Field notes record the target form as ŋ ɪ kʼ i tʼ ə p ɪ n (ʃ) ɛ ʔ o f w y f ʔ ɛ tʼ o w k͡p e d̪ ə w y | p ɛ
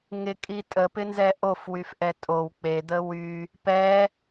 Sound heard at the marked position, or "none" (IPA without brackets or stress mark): z